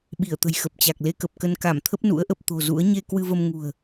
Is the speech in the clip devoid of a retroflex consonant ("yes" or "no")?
yes